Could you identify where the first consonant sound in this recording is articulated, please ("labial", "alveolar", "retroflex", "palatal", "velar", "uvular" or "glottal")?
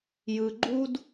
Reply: palatal